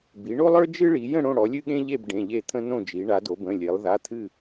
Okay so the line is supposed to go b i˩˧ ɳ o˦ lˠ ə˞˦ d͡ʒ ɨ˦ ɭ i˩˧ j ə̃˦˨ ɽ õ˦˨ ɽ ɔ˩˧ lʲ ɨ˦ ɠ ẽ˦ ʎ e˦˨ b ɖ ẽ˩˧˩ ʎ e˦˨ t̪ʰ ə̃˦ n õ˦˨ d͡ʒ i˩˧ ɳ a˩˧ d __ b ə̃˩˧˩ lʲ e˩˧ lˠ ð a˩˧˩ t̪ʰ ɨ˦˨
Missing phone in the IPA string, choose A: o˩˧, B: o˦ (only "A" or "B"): A